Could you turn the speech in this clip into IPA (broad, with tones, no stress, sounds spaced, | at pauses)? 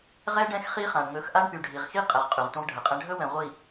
ʁ ɛ˦ ɖ ɛ̃˦ x χ i˦ χ ã˨ ɳ ŋ ɵ˨˦ x ʔ a˦ ɳ p y˨ ɖʱ i˨ ʁ x i˦ qʼ ɛ˨ ʁ qʼ y˨ ʁ tʷ ə̃˦ ʁ ɖʱ ə˨ qʼ ɛ̃˦ ɖʱ ɵ˦ w ɛ̃˨ ʁʷ i˨